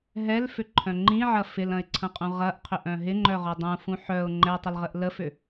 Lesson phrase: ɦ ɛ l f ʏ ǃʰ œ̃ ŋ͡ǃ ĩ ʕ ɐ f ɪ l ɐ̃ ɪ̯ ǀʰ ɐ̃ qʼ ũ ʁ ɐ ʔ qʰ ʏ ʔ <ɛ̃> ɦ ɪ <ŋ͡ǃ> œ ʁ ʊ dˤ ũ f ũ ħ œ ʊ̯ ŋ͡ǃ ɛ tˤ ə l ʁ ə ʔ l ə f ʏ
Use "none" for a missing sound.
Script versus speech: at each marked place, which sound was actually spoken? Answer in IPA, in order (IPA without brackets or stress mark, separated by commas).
œ̃, ŋ͡ǃ